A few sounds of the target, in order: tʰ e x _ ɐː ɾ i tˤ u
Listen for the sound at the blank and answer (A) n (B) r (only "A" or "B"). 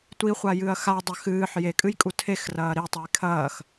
B